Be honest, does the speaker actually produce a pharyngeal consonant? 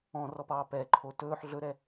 yes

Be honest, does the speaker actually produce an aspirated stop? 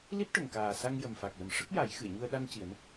no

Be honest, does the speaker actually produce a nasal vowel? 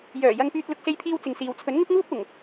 no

